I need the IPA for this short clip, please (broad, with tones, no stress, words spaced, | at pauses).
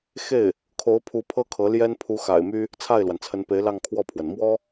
xe˥˩ɪ̯ | kʰo˧˥ʊ̯pʰu˧˥ pʰɤ˥kʰɤ˧˥ljɛ˥n pʰu˧˥ xa̰˨˩ɪ̯my˥ | t͡sʰa˥˩ɪ̯lwa˩nt͡sʰə˧˥npe˧˥ɪ̯ lɑ˥˧ŋkʰwɔ˥˩pʰwə˩n mwɔ˥